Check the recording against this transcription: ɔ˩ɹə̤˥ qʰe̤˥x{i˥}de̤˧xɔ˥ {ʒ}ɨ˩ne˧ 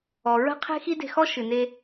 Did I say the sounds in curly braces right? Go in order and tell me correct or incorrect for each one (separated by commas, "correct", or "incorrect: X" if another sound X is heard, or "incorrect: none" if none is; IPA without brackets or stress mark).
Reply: correct, incorrect: ʃ